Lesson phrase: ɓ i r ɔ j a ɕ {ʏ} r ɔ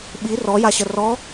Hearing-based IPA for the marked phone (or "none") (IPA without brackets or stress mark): ə